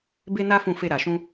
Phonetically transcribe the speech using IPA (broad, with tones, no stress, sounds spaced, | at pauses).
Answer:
b e˧ n a˧ f ũ˨ f e˨ ɾ a˨ ʃ ũ˧